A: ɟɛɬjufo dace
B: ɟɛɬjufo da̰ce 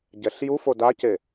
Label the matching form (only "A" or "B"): A